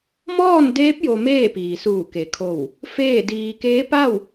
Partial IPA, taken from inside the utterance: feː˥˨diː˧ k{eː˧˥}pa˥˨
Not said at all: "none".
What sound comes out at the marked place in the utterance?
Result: eː˧˥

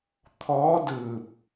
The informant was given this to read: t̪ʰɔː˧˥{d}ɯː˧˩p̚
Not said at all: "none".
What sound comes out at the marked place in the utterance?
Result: d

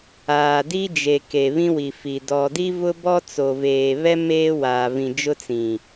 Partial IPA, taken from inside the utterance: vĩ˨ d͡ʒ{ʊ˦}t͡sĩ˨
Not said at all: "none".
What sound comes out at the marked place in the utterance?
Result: ʊ˦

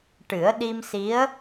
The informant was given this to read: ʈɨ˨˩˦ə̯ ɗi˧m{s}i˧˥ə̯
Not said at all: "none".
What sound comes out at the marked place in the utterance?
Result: s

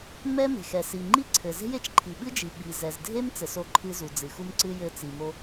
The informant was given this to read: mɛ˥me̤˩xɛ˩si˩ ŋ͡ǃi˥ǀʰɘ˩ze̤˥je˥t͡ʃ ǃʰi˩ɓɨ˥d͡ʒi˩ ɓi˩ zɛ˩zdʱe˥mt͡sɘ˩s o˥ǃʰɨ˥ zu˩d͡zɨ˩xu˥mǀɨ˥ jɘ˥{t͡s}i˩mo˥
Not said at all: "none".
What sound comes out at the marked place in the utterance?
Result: t͡s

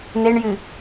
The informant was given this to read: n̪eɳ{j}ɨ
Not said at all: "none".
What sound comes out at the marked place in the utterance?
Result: j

